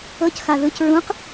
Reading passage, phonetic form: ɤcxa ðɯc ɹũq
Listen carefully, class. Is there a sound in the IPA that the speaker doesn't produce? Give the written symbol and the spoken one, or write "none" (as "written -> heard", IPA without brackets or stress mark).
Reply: none